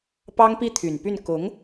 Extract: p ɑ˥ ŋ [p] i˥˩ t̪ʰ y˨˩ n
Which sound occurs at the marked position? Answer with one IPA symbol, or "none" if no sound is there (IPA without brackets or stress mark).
p